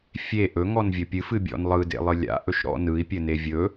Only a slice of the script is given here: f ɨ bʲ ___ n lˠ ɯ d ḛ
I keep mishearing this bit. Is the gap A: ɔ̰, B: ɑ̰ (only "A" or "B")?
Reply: A